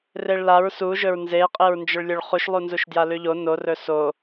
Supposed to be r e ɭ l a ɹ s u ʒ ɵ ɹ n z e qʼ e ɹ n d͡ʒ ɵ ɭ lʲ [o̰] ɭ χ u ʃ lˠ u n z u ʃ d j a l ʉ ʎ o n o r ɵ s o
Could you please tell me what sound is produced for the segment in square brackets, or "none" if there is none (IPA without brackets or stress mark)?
o